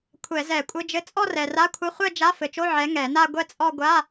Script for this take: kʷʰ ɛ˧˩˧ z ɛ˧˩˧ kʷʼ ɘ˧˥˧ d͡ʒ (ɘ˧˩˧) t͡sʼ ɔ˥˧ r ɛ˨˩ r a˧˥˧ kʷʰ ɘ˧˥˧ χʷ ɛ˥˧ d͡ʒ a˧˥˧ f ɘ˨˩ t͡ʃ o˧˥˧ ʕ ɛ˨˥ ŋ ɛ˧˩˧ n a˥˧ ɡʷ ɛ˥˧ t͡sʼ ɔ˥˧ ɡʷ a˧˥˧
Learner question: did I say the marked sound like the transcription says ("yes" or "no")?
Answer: no